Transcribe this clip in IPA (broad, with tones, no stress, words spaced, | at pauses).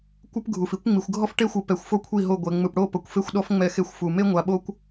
kʷɯ˦pɡʱu˨fi˦kʷŋ͡mi˨xʷ ɡʱɔ˦fʈe˦xʷɯ˨ pɛ˨xʷfo˦ kʷʰi˦˨ɦo˦˨ɡʷɛ˨ ŋ͡mɯ˨pɽo˦˨ pɤ˨kʷfe˦xʷɗɔ˦f ŋ͡mɛ˦˨xe˦xʷfu˨ me˦ŋʷa˨ɓo˦kʷ